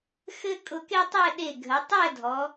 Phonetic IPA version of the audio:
xɘ˥ kʼʊ˧ke˥tˤɛ˥˧ ɗe˧˩ɡʱə˩˧ tˤɛ˥˧dʱɔ˩˧

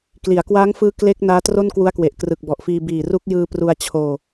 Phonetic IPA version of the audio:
kli˩˦a̯kwaː˦˥ŋfɯː˦˥ kle˦˥k̚ naː˦˥tro˥˩nkwu˦˥a̯kwe˨˩ʔ krɯ˨˩k̚bɔ˨˩ʔfiː˧ biː˨˩ru˦˥k̚ jɯː˧pru˧a̯ t͡ɕʰoː˧

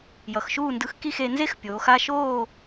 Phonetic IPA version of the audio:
jʌ˩˧xʃuː˦˨ndɯ˧˥x ki˦˨xe˩˧nze˥xpʲoː˩˧x a˦˨ʃoː˦˨

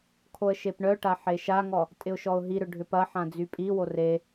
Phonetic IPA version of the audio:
kʰoə̯ʃepɳœʈa ħeʃaŋɔ | tʼɪʊ̯ʃɔʊ̯ɦiɾʏ ɖʱʏpɐħã d͡zypʼiwo re

